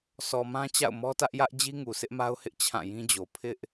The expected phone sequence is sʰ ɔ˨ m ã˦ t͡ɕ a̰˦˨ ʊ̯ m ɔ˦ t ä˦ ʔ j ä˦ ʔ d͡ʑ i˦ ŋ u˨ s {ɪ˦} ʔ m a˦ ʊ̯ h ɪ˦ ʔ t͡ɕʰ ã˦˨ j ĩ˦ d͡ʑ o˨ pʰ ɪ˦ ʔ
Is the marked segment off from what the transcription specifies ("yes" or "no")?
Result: no